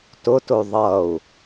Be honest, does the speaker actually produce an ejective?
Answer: no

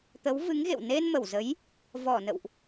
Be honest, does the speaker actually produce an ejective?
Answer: no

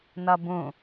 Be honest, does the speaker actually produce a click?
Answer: no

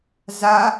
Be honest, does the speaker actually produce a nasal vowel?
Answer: no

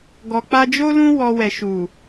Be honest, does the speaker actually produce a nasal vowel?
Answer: yes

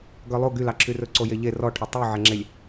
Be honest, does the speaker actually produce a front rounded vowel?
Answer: yes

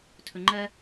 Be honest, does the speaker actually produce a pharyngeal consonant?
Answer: no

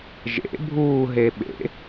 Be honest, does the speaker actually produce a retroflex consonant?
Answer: no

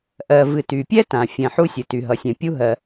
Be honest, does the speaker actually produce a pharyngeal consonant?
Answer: yes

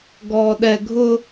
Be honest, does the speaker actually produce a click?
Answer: no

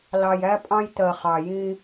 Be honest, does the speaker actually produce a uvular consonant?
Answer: yes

